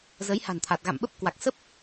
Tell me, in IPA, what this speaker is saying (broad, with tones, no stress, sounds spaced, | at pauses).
z ə˨˦ j h a̤˨˩ n t̪ʰ a˨˩ t̚ ɣ a̰˧˨ m ɓ ə˦˥ p̚ k w a˨˩ k̚ s ə˦˥ p̚